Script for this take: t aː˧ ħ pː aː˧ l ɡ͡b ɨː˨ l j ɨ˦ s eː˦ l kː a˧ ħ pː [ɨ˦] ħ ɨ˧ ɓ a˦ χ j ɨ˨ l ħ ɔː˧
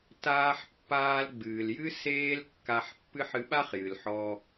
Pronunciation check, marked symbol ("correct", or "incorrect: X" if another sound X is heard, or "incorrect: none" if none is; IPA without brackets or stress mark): correct